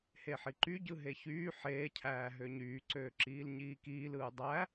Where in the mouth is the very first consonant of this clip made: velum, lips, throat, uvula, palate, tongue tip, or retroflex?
throat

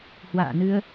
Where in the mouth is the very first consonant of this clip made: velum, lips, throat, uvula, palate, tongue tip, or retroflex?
throat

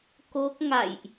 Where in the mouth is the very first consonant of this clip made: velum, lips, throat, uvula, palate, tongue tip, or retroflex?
velum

